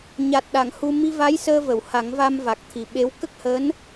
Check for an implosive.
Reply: present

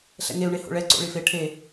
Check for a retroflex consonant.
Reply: present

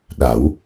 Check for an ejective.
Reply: absent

